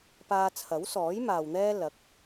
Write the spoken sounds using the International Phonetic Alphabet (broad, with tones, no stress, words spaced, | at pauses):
paː˧t͡sʰɐ˨˥wsɔː˨˥j maː˨wn̪ɛː˥ lɐ˨˥k̚